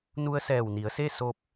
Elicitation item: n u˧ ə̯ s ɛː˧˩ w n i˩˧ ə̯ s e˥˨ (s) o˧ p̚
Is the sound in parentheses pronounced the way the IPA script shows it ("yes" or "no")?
yes